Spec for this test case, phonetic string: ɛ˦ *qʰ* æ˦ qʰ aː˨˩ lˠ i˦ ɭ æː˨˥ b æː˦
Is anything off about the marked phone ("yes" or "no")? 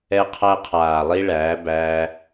no